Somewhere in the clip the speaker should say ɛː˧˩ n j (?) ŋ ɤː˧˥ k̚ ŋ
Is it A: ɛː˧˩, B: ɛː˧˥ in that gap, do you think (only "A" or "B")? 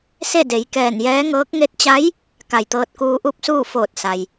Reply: B